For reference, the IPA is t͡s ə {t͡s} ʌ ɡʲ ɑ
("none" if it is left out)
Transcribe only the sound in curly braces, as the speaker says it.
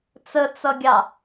t͡s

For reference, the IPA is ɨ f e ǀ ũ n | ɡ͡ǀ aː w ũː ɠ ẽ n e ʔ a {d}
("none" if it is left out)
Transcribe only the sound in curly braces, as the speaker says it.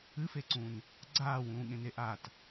t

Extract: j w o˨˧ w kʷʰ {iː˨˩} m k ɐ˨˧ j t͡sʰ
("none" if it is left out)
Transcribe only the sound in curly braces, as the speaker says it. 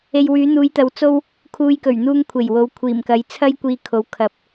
iː˨˩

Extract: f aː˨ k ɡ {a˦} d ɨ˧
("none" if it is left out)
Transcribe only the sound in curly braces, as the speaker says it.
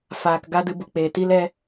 a˦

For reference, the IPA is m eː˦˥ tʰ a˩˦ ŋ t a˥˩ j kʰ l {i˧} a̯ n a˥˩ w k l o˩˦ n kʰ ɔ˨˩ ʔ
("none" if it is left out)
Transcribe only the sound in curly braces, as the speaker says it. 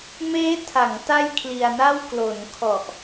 i˧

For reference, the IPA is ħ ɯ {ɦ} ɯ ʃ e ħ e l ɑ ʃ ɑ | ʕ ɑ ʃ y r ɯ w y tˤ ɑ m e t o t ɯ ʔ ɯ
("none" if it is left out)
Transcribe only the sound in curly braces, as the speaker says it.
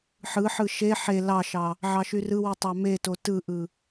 ħ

